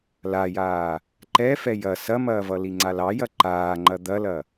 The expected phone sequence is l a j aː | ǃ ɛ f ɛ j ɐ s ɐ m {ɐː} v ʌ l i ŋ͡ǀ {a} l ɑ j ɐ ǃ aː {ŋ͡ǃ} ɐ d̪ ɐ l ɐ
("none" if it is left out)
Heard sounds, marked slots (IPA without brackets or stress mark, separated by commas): ɐː, a, ŋ͡ǃ